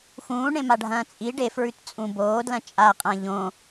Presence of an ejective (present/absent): present